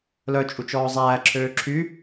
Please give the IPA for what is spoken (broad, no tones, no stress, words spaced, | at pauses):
lœt͡ʃʼut͡ʃ ɔːzˤæː ǁʰøːǁʰy